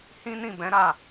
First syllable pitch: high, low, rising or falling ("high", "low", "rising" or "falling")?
high